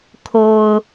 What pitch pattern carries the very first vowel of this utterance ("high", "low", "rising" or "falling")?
low